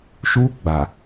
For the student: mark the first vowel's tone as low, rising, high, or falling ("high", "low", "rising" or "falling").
high